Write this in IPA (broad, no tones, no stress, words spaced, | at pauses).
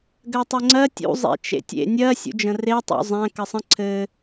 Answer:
ɡɜtˤɘŋ͡ǀɜ tʲṵ zˤḛt͡ʃḛtʲḛ nʲɜ sʲṵd͡ʒə̃re tˤṵzˤæ̃ kəsˤə̃ ǀʰɘ